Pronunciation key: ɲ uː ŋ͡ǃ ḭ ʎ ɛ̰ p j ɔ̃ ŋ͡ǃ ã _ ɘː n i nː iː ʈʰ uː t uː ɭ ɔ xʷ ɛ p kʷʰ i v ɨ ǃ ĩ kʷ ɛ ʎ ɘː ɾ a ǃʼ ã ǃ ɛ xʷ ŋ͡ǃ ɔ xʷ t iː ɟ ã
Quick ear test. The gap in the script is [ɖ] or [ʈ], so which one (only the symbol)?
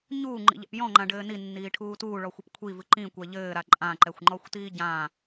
ɖ